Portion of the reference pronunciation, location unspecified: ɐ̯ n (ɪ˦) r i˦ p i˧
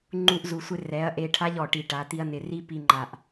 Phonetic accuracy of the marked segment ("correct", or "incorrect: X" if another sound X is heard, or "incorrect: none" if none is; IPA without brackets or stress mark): incorrect: ɪ˧